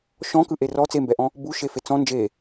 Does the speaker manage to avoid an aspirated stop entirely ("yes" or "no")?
yes